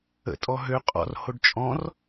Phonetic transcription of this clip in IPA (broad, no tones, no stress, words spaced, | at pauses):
ə̰tʼɔ ɦø qʼɔ̰r hoɖt͡ʃʼɔ̃r